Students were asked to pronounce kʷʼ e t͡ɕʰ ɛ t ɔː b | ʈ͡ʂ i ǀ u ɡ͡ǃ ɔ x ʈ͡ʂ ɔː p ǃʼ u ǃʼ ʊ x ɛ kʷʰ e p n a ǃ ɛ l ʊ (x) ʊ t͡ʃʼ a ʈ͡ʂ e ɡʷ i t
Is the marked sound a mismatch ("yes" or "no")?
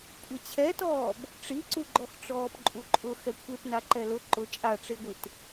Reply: yes